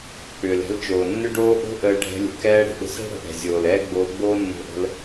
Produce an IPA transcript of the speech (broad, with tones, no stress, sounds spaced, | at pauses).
k͡p ʏː˨ l ɛ̤˧ l t͡ʃ oː˨ nː ʏ˦ ɖ oː˦ ʔ o̤˦ ʔ əː˧ ɖʱ ɛ̤˧ lʲ ə̤˨ k ɛː˧ ɽ ə̤˨ ɗ ə̤˧ s ɛ̤˦ ɽ ə̤˨ ʔ ɛ̤˨ zʲ oː˨ l ɛː˦ ɡ͡b oː˧ ɡ͡b oː˦ nː o̤˧ ʔ ə̤˧ l